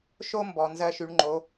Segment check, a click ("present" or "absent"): present